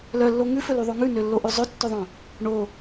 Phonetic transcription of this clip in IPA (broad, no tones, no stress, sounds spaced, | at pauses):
l œ lː o ŋ ʉ f ɵ l y ðˤ o ŋ ʉ n ø lː o ʔ ʉ zˤ ɵ tː ɵ ðˤ œ̃ | ɳ o